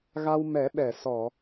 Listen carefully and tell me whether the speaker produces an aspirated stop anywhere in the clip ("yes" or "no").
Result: no